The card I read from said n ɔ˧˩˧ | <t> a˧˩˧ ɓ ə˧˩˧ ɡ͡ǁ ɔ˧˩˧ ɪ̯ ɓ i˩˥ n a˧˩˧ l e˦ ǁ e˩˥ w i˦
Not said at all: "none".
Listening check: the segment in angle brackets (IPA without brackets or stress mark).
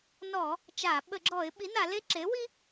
t͡ʃ